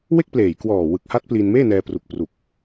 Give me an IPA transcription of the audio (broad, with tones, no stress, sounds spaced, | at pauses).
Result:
w e˥˩ k̚ p l eː˨˩ j k w ɔː˨˩ w ɯ˨˩ k̚ h a˦˥ t̚ p l iː˧ n m eː˥˩ n ɛː˧ p r u˨˩ k̚ p r u˨˩ k̚